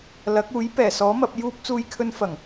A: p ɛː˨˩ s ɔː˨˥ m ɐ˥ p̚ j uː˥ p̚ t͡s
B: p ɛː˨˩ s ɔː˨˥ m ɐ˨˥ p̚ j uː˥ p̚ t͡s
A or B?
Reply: B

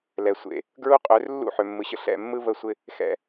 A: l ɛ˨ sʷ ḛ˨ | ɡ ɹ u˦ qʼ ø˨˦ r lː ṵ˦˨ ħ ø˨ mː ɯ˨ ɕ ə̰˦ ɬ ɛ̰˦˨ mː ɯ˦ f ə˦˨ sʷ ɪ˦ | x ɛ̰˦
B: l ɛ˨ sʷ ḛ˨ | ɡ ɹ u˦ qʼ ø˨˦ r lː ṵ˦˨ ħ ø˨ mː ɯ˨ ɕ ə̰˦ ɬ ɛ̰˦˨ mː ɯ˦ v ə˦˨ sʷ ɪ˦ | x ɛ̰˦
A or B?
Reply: B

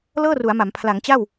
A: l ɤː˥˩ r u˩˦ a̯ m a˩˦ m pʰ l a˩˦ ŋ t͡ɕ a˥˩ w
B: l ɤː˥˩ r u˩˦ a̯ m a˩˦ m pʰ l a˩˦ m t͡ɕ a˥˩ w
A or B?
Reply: A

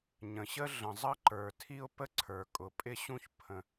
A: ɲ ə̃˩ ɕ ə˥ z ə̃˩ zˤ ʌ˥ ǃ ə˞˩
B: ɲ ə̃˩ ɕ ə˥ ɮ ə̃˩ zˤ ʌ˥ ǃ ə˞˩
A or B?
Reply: B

